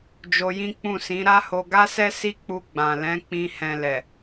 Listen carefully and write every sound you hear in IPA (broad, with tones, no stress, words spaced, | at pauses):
d͡ʒo˧jĩ˦ k͡pũ˦˨sĩ˨˦ ɾa˦ho˧ ɡa˦sɛ˦si˦k͡pu˧ ɡ͡bã˨lɛ̃˨˦ k͡pĩ˧ hɛ̃˨ lɛ˨